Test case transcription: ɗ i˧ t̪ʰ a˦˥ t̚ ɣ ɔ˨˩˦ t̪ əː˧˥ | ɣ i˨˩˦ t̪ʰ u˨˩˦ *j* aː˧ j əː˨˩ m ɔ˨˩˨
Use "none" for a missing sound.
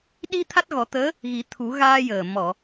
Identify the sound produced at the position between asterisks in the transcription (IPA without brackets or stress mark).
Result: ɣ